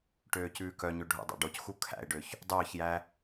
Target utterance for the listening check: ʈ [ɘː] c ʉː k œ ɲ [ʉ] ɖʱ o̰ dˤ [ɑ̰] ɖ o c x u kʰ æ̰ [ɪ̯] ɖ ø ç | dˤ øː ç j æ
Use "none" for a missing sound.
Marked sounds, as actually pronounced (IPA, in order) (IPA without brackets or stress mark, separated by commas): øː, ø, ɑ̰, ɪ̯